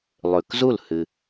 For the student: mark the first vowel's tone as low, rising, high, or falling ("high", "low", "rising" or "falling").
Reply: low